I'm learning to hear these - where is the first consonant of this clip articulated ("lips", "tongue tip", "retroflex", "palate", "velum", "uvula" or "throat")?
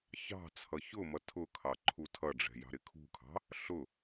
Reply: palate